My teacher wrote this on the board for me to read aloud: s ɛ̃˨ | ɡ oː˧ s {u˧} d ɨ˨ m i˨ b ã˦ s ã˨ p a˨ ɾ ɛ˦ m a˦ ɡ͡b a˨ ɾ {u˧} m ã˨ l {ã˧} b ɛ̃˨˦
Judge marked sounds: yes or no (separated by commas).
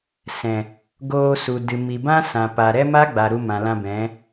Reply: no, yes, yes